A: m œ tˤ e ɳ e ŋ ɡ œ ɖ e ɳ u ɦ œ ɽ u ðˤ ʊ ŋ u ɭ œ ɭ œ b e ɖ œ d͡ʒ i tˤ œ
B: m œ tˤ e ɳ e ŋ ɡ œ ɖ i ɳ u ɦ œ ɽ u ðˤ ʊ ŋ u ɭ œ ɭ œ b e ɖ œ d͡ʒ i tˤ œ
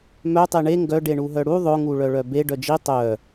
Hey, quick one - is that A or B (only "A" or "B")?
A